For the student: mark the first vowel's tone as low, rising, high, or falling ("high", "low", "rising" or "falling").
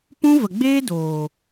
high